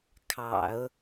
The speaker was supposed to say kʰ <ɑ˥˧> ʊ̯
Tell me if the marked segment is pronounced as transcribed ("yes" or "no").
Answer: no